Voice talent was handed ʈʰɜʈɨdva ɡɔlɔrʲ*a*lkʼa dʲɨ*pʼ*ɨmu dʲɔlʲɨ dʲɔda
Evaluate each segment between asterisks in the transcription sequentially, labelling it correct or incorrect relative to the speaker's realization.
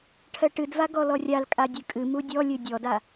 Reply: correct, incorrect: kʼ

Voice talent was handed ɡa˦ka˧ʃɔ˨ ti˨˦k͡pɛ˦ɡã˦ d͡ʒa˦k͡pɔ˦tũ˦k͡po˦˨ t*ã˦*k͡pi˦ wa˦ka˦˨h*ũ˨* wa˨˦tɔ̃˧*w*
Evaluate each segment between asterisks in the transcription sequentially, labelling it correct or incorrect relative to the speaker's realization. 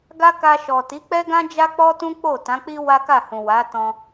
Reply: incorrect: ã˨˦, correct, incorrect: none

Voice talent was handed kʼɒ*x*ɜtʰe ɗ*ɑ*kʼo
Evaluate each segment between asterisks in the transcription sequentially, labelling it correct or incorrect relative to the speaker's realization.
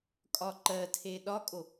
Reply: incorrect: ǃ, incorrect: ɒ

